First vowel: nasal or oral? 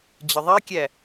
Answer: oral